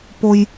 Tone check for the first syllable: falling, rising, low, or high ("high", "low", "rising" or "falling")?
high